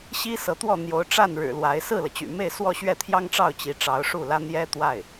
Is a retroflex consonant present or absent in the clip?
present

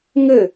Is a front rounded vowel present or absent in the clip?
absent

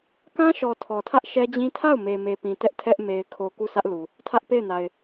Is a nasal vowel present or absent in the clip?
present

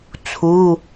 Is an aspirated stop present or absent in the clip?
present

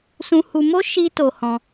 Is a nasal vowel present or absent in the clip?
present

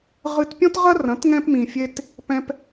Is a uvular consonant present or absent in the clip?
present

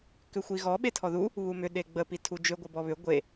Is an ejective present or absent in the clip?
absent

